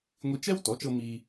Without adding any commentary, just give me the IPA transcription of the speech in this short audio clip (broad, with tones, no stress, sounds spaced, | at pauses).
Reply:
ŋʷ i˧ t͡ʃ ɛ˥ w t ɔ˩˥ t͡ʃ ɤ˧ m iː˧